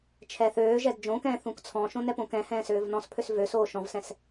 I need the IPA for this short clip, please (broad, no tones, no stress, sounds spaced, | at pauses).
t͡ʃʰ ɛ θ øː ʒ ɛ d d͡ʒ õ k ɛ̃ː θ ũ k t͡sʰ ɔ̃ ʃ õ n ɛ p õ k ɛ̃ h ɛ̃ː s øː v n ɔ̃ s pʰ ø s v ø s oː ʃ ɔ̃ v s ɛ̃ s